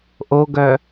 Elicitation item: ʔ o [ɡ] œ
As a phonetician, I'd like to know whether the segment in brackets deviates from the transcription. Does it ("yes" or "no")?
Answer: no